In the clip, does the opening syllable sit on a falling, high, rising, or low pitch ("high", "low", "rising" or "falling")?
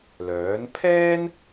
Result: rising